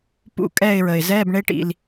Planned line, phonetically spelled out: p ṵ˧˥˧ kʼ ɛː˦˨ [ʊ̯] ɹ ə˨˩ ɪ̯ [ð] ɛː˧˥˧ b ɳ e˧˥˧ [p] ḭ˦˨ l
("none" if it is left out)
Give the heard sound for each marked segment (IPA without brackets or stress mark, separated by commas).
ɪ̯, z, ʈ